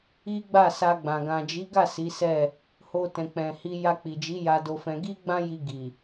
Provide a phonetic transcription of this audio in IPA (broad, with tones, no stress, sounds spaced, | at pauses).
i˦ ɡ͡b a˦˨ s a˧ ɡ͡b ã˨ ɡ ã˨ d͡ʒ i˨˦ ɡ a˦˨ s i˨˦ s ɛ˦˨ | h o˧ t ɛ̃˨ k͡p ɛ̃˨ h i˧ j a˧ k͡p i˨ d͡ʒ i˨˦ j a˧ d o˧ f ɛ̃˧ ɡ i˦ ɡ͡b ã˦ j i˧ ɡ i˨